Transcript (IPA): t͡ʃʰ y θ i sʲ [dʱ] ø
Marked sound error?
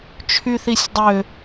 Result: yes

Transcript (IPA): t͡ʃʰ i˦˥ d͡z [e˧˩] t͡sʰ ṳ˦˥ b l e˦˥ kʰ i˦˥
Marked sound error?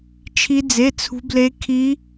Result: yes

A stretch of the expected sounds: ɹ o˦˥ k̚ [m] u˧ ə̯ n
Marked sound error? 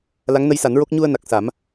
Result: yes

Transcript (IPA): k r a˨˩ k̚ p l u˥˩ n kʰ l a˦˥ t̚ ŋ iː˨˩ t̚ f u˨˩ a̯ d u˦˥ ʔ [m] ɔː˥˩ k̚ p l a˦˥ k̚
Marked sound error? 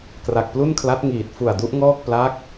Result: yes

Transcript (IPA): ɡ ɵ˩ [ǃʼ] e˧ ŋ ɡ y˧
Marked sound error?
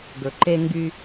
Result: yes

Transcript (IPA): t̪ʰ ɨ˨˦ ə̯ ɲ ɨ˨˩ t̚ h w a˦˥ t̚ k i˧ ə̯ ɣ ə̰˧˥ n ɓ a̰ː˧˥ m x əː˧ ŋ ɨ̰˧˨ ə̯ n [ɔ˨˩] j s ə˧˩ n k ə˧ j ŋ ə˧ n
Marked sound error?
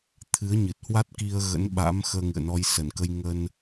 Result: yes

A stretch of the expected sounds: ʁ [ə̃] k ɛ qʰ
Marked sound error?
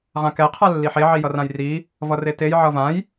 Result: yes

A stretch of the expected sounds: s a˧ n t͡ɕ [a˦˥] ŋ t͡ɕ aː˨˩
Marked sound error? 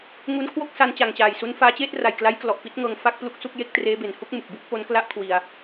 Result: yes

